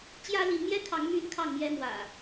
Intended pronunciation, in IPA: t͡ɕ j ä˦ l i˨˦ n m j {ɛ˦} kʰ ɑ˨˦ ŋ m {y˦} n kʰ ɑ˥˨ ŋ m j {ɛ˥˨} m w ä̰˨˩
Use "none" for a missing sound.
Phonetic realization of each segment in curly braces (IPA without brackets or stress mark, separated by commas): ɛ˦, y˦, ɛ˦